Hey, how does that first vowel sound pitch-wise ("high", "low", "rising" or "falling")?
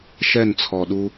falling